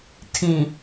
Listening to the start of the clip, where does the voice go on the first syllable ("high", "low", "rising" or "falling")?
low